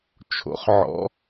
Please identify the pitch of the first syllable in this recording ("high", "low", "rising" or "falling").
rising